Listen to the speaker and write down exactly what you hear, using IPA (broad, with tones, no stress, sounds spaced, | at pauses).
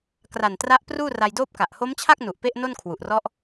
k r a˨˩ n t r a˦˥ ʔ p r uː˥˩ r a˧ j d oː˥˩ p̚ k a˨˩ ʔ h o˦˥ m t͡ɕʰ a˥˩ k̚ n u˨˩ ʔ p e˥˩ ʔ n o˥˩ n kʰ w u˨˩ ʔ r ɔ˦˥ ʔ